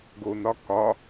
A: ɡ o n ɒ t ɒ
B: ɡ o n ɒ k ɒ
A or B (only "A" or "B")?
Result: B